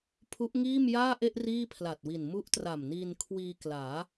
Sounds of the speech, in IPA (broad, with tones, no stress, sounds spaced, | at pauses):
pʰ u˦˥ ʔ ŋ iː˥˩ m j aː˥˩ ʔ e˥˩ ʔ r iː˥˩ pʰ l a˨˩ t̚ w i˨˩ n m u˦˥ ʔ t r a˨˩ m n iː˧ n kʰ w iː˧ k l aː˩˦